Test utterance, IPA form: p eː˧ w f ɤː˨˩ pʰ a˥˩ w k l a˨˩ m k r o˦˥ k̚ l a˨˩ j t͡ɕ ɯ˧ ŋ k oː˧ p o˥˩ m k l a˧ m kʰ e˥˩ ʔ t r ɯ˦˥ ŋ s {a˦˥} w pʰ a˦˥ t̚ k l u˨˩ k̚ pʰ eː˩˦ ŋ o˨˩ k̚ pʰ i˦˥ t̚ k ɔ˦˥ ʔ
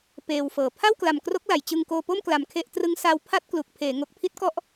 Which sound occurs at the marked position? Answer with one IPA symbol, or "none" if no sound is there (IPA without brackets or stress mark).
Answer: a˦˥